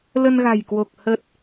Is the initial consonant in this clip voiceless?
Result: no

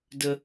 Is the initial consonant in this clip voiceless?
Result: no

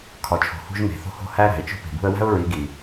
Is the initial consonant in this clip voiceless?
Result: yes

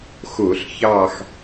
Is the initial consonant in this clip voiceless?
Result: yes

